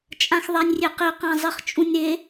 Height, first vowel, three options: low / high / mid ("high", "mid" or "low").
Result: low